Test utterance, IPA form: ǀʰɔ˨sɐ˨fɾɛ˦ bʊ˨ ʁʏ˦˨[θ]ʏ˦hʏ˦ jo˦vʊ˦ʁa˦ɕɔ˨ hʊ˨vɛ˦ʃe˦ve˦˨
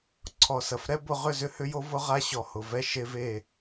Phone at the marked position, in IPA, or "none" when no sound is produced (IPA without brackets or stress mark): z